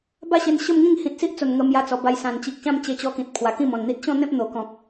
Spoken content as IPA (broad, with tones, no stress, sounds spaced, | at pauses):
b a˥˧ ɕ e˧ n ɕ ə˥˧ m ŋ ĩ˥˧ ŋ h ĩ˨ t̚ s i˦ ʔ t͡s o˨˩ n ŋ ə˧ m j a˧ t͡s ɔ˨˩ b a˧ j s ã˨˩ n t͡ɕ i˨ k̚ ɕ ã˥˧ m t͡ɕ e˧ t͡ɕ ɔ˧ k ĩ˨ t̚ pʰ w a˨˩ k ĩ˥˧ m ɔ̃˨˩ n n̪ i˦ t̚ ɕ ɔ̃˥˧ n̪ ẽ˦ p̚ n̪ o˨˩ k ɔ̃˨ k̚